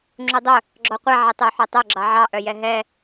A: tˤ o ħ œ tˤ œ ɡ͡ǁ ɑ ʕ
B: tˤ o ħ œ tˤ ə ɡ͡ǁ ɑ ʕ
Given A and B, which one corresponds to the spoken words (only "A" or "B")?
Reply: A